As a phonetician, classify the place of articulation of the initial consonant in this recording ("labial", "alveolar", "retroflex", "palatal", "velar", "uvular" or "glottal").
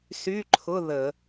alveolar